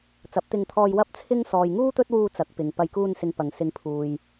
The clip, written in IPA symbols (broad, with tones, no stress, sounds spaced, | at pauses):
t͡s ɐ˨˥ p̚ t̪ ɪ˧ ŋ t̪ʰ ɔː˧ j w ɐ˥ p̚ t͡sʰ ɪ˥ ŋ s ɔː˨ j ŋ uː˥ t̪ ɵ˥ t̚ w uː˧ t͡s ɐ˨˥ k̚ p ɪ˨ ŋ p ɐ˨ j k uː˧ n s ɪ˨ ŋ p ɐ˨˩ ŋ s ɪ˨˧ ŋ pʰ uː˨ j